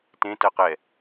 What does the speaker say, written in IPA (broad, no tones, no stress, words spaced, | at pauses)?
tẽ tɜqɛ